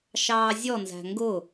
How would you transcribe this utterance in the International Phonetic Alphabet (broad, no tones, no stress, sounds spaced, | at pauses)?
ʃ ɑː zʲ ɔ n z æ̤ ŋ ɡ ʊ